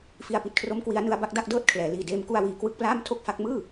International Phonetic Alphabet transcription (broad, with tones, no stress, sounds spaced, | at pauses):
f i˧ a̯ p i˨˩ t̚ kʰ r o˦˥ m k w i˦˥ a̯ n ɯ˦˥ a̯ b a˦˥ k̚ d a˥˩ k̚ d ɤː˥˩ t̚ kʰ l ɛː˩˦ l iː˨˩ d eː˧ m k u˧ a̯ w iː˨˩ k w ɯ˦˥ k̚ p l aː˥˩ m tʰ o˥˩ k̚ f a˦˥ k̚ m ɯː˥˩